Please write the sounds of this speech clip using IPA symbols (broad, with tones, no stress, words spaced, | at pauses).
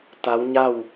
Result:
t̪a˧˥wɲa˥˨w